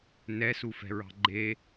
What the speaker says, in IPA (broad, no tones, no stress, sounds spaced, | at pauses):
n ɛ s u f ɛ̤ ɹ ɑ̤ ɡ͡ǃ e